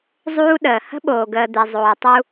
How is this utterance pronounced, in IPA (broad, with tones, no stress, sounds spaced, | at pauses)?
zˤ uː˦ ɗ əː˨ h ə̤˦ ɓ oː˨ ɡ əː˨ d̪ e˨ zˤ oː˨ tˤ u˦